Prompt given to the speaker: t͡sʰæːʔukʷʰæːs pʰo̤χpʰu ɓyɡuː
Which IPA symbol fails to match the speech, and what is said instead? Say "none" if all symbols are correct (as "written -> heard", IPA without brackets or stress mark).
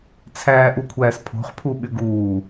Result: none